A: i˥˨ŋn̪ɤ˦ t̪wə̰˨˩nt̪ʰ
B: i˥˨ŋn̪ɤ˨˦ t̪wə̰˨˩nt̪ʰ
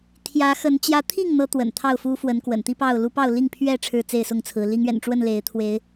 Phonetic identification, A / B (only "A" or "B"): B